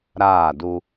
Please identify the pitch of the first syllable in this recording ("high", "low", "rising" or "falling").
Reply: falling